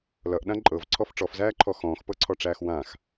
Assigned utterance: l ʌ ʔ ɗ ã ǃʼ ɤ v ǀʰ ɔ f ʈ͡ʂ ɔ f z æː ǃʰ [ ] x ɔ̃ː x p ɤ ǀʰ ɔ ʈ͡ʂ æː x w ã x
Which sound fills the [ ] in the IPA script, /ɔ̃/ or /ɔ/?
ɔ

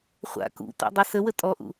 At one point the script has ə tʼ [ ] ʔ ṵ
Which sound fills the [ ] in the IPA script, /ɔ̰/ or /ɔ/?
ɔ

